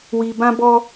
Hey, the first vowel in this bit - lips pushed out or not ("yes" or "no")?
no